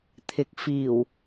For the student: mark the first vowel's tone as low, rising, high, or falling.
low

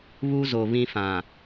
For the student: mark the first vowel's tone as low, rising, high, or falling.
high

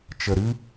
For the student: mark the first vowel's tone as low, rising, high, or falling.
low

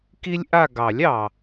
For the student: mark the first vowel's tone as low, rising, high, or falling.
high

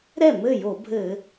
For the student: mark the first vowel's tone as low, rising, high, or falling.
falling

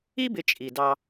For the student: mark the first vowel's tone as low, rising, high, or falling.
high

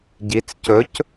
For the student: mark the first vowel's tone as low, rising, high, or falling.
rising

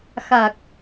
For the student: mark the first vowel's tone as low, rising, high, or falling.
low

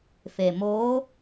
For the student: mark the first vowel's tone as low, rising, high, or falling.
low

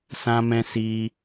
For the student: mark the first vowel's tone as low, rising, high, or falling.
low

